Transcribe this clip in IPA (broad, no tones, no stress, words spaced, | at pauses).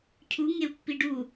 cʰuŋeu̯pːi ɖu